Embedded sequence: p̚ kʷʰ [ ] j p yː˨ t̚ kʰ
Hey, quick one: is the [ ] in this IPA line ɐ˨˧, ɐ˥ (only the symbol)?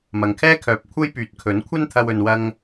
ɐ˥